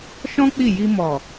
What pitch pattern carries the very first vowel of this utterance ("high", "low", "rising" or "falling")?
high